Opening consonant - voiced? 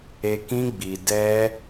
no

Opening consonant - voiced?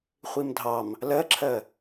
no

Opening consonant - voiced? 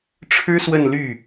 no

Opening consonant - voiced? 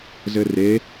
yes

